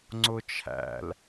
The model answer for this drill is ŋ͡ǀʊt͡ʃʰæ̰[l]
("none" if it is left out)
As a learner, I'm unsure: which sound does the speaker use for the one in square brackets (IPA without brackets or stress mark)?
l